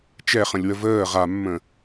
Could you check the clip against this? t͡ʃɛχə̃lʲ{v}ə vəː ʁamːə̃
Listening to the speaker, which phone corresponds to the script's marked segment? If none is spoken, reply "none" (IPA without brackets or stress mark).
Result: w